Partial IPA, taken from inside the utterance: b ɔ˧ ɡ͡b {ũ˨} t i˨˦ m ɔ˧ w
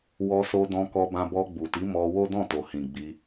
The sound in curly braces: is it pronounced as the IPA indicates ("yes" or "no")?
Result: no